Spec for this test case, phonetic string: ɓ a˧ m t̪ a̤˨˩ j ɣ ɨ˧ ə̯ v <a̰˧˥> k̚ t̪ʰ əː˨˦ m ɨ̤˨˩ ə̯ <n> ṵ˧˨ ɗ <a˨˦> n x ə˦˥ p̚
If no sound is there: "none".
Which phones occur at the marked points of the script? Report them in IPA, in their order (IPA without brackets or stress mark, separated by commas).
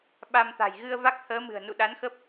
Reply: a˦˥, n, a˨˦